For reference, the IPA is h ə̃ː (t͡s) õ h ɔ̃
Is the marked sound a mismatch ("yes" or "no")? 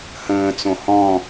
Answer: no